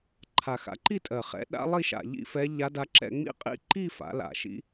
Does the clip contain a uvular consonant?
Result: yes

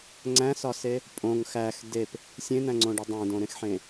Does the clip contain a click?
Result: yes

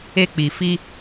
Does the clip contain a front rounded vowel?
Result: no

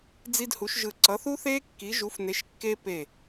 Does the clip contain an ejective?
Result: no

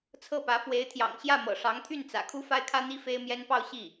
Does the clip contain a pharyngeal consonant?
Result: no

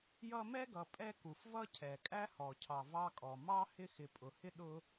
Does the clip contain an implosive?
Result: yes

